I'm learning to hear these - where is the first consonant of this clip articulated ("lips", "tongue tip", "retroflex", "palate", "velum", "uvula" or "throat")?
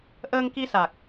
throat